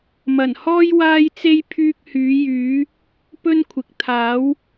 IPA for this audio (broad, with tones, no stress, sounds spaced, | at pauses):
m ɐ˨˩ n h ɔː˥ j w aː˥ j t͡s e˥ j pʰ yː˥ k̚ h yː˨˥ j yː˨˥ | p ɵ˥ n kʷʰ ɪ˨ k̚ t̪ʰ aː˨˥ w